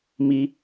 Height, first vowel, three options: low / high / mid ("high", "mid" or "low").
high